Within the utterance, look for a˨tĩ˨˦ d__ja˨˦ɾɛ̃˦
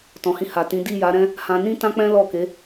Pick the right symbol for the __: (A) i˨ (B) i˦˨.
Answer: B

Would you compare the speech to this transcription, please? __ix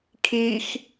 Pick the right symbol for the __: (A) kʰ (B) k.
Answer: A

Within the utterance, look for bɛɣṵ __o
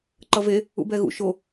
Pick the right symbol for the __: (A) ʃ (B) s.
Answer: A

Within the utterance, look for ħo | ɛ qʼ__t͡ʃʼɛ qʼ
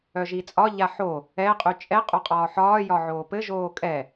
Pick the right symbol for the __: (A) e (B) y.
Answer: B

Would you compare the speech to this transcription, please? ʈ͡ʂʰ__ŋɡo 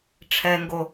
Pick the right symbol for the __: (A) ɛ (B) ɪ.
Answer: A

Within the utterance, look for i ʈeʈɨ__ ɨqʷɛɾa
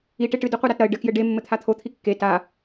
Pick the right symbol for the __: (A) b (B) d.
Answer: B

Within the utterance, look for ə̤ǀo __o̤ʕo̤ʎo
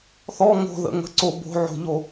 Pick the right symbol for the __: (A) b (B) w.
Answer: A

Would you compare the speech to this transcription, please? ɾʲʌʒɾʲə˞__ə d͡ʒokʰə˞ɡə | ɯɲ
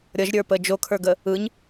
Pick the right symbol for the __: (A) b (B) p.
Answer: B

